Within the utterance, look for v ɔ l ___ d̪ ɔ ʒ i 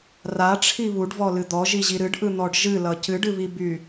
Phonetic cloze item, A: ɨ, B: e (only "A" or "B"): A